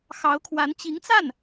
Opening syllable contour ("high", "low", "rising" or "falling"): rising